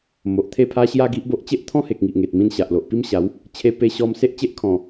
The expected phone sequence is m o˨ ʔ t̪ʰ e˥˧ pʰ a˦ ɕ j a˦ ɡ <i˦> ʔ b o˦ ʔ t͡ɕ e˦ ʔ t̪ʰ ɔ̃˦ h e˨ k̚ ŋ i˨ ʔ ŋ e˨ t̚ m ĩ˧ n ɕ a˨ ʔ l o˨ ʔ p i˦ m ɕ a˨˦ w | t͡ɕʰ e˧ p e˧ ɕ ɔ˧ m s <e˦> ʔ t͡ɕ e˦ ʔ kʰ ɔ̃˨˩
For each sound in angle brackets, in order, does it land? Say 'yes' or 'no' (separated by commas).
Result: yes, yes